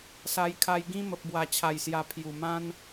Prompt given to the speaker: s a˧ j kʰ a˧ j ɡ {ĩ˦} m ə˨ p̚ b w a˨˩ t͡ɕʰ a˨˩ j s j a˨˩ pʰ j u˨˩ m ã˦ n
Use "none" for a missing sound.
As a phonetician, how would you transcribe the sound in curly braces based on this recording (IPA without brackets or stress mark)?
ĩ˦